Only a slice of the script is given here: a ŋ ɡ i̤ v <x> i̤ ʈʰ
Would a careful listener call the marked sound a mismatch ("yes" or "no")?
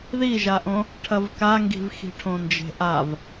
no